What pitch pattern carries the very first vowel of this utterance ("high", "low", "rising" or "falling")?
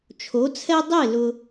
rising